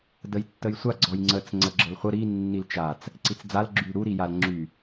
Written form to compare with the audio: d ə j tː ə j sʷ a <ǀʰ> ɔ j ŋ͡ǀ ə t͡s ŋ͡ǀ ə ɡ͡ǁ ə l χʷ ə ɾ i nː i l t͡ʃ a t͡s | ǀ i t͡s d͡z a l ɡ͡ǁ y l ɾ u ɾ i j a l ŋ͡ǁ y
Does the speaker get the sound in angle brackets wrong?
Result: yes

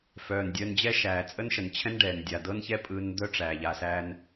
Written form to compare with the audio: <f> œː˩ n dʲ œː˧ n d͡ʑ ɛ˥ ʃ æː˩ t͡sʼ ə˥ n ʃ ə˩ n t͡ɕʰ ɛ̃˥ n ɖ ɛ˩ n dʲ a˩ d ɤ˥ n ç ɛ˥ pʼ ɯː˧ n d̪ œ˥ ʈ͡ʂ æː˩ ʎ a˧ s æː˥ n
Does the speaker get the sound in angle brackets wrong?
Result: no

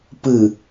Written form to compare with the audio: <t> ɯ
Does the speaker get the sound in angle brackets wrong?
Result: yes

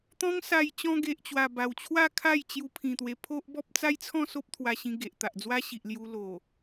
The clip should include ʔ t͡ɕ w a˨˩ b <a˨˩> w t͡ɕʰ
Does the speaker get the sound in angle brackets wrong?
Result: no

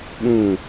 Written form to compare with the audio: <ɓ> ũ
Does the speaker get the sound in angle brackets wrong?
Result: no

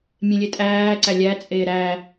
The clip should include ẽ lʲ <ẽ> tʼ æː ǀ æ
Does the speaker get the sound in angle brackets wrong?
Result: yes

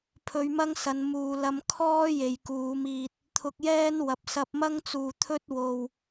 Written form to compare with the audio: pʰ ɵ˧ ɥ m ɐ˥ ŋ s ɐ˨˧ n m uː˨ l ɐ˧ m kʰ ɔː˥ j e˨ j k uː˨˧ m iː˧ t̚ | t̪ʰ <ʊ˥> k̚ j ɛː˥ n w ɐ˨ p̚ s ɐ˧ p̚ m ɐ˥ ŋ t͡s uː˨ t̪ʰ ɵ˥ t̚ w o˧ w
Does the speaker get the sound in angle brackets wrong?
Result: yes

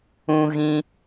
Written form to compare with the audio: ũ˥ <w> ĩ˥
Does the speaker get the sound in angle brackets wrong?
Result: yes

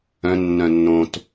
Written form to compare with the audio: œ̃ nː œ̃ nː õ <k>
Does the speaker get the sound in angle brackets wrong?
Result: yes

